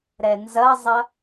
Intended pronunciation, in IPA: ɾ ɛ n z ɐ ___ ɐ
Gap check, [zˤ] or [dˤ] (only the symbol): zˤ